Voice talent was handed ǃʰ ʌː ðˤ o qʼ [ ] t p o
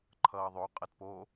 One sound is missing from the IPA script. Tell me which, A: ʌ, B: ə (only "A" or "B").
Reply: A